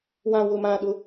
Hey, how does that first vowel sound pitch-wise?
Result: low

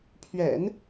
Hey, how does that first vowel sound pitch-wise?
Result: low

